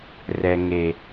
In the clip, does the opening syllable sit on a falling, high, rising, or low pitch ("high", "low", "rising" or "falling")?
low